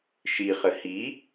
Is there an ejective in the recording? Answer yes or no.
no